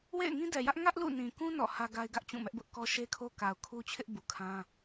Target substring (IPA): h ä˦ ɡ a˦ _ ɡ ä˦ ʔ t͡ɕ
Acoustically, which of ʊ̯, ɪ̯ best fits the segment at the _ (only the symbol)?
ɪ̯